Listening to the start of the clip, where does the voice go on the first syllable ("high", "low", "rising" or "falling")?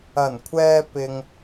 low